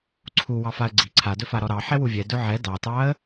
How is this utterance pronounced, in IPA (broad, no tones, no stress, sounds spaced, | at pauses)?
ǀʰ u w ɑ f a ə̯ ɡ͡ǀ i ǀʰ a d ɵ f a ɾ ɔ ɾ ɑ ħ ɛ w u vʲ ɛ d ɵ ʕ ɛ d ɑ t ɑ ə̯